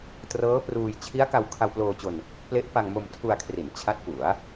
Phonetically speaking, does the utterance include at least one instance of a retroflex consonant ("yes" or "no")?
no